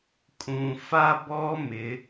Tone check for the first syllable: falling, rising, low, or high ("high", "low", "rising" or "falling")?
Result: low